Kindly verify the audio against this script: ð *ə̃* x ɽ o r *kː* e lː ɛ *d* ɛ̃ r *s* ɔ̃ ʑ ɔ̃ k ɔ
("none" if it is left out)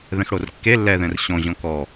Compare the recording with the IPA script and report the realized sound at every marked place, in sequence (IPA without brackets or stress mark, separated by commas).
ɛ̃, kː, ð, ɕ